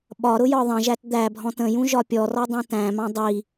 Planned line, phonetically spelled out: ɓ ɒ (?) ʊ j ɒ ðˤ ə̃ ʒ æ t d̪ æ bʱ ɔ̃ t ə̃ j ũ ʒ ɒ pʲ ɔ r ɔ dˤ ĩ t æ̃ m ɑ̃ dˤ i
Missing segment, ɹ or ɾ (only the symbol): ɾ